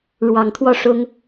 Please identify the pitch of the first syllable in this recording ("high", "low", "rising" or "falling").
low